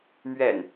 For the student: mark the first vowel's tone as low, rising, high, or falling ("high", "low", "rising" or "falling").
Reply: low